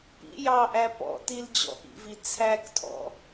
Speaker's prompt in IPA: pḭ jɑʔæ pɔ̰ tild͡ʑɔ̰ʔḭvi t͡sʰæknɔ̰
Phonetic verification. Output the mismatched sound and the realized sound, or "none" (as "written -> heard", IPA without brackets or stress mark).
n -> tʰ